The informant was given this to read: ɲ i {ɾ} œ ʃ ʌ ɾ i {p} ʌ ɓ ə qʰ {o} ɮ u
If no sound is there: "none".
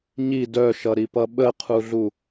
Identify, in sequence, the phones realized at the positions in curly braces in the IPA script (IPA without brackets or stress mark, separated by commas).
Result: d, p, u